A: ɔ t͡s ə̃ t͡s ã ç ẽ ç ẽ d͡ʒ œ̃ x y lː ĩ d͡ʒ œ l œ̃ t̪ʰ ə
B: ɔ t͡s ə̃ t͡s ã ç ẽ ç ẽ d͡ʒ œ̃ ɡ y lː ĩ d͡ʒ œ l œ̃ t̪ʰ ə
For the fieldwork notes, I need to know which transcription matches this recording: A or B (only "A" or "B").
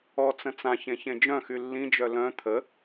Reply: A